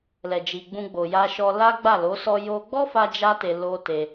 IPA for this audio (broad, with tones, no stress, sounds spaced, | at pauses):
l ɛ˨ d͡ʒ i˨ ɡ͡b ũ˧ ɡ͡b o˨ j a˧ ʃ ɔ˧ l a˦ ɡ͡b a˦˨ l o˨˦ s ɔ˧ j o˧ ɡ͡b ɔ˦ f a˦ d͡ʒ a˦ t e˧ l o˧ t e˧